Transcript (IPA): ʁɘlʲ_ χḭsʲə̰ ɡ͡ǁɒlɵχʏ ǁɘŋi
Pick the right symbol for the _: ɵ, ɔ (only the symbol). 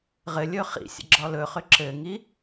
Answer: ɵ